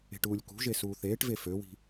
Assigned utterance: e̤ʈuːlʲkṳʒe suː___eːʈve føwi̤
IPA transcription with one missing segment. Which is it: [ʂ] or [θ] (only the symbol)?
θ